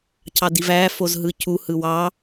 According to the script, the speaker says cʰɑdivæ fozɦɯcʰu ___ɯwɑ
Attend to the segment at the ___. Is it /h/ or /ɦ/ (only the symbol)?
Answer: h